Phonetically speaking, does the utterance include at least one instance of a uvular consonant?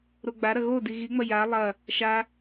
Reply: no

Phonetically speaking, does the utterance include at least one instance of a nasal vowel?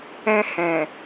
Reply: yes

